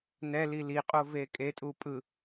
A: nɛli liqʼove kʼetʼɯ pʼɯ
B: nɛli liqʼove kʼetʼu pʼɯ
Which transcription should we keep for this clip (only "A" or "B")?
B